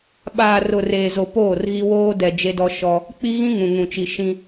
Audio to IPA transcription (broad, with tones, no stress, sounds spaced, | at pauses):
ɓ aː˨ r ʊ˨ r eː˨ z o˨ p oː˦˨ r ɣ i˦ w oː˦ d ɛ˨ d͡ʒ e˦ d ɔ˦ ʃ ɔ˦ | k͡p i˦ ɣ ĩ˦ ŋ ũ˨ ŋ ũ˨ t͡ʃ i˨ ʃ ĩ˦